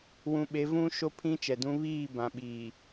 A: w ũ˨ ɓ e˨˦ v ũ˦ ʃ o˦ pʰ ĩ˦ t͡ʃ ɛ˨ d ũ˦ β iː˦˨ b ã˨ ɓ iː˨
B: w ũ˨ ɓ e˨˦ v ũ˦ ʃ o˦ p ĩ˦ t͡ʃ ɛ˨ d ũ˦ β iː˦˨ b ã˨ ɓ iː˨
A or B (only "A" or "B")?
A